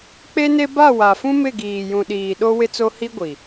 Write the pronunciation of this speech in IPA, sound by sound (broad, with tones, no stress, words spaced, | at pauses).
k͡pe˦ne˦ ba˦˨wa˨fũ˦ mɪ˦˨ɡiː˨jũ˨ɗiː˨ ɗo˦ wɪ˦t͡so˦ hi˦ɡʷi˨